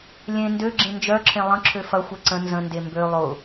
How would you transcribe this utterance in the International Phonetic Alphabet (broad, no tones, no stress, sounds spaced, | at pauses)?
lʲ ẽ n d ø ɡ͡ǁ ẽ n d͡ʒ œ ǁʰ ẽ lˠ ə̃ ǁʰ ø f ɐ xʷ ɛ ǀ ə̃ n z ə̃ n d e m b ø lˠ ʊ